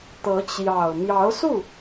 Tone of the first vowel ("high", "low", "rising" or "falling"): rising